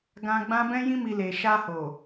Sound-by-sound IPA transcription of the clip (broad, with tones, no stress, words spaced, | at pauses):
ɡã˧ ɡ͡bã˦ bɛ̃˧jĩ˧mi˨ le˨ ʃa˧ho˨